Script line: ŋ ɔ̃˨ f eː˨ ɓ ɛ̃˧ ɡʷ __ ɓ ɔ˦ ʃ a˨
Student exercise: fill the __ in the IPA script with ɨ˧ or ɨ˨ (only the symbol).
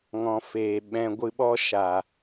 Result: ɨ˧